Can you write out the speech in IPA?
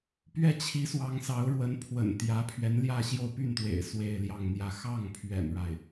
p ɥ ɛ˥˩ t͡ɕʰ i˧˥ s w ɑ˧˥ ŋ s ɑ˧˥ ʊ̯ ɻ w ə˧˥ n pʰ w ə̰˨˩ n t̪ j ä˧˥ pʰ ɥ ɛ˧˥ n l j ä˥˧ ɕ j o˥˧ ʊ̯ p y˥˩ n t̪ w ḛ˨˩ ɪ̯ s w e˥˧ ɪ̯ l j ɑ˥˧ ŋ n̪ j ä˥˧ x ɑ˥˩ ŋ pʰ ɥ ɛ̰˨˩ n ɻ a˥˩ ɪ̯

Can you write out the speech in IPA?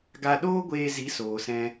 ɡ a˧ ɗ oː˦ ɡʷ eː˧ z i˨˦ s oː˨ s ɛ̃˧

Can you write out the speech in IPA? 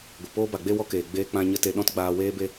ɡʷ ɨ˨ p oː˦ b a˨ ɡ͡b e˦ w ɔ˧ k eː˨ ɡ͡b eː˦ k͡p ã˦ ɲ ə˧ t e˧ ɗ ɔ̃˦ t ɡ͡b aː˧ w eː˦ b e˦

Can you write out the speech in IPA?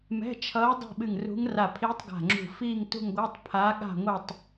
m ɛ̤˧˥˧ t͡ʃʰ ʌː˧˥ dˤ ɛ̤˥˧ ɓ ɨ˧˩ ŋ r ṳ˧˥ ŋ r a˧˩ pʰ iː˧˥ tˤ ɡ a̤˧˩ ŋ͡ǁ ṳ˧˩ f iː˥˧ ŋ t ṳ˥˧ ŋ ɡʷ ɤ˧˥˧ tˤ pʰ a˧˥ ɠ a̤˥˧ ŋʷ ʌ˥˧ tˤ

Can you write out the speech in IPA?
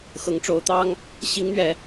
x ɤ˧˥ ŋ ʈ͡ʂ o˧˥ ʊ̯ t̪ ɑ˥ ŋ | ɕ i˧˥ ŋ n̪ ɥ ɛ˧˥

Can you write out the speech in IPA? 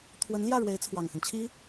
t̪ʰ w ə˧˥ n l j ä˥˩ ɻ w e˧˥ ɪ̯ t͡sʰ w ɑ˨˩ ŋ x ə˦ n t͡ɕʰ i˥

